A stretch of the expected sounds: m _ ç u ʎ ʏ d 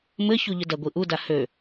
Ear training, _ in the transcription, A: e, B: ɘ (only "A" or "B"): B